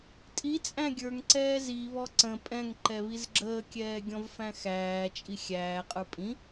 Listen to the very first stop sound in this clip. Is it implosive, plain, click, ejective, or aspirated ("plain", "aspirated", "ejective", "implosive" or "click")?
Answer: ejective